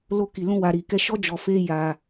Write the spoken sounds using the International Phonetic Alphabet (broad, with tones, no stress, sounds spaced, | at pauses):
l o˧ k i˨ l ũ˧ w a˨ ɾ i˨ k ɛ˧ ʃ ɔ˦ d͡ʒ ɔ˧ f e˦ j a˧